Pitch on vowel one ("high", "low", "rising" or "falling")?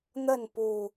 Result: falling